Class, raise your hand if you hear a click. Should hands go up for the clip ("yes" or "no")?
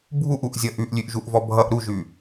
no